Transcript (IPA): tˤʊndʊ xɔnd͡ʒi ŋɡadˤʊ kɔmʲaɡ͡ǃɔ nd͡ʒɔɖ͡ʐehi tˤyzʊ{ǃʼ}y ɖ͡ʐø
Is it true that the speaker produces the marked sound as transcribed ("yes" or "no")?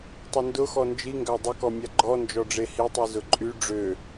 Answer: yes